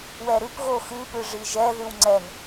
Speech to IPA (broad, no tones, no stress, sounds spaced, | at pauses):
w ɛ ɾ ʉ p ɣ o x ɨ p ɨ ʐ i ʒ ɛ ð ʉ w ŋ͡ǀ ɛ n